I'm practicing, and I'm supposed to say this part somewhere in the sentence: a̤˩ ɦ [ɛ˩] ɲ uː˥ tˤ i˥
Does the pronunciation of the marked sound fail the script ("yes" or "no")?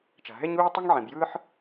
yes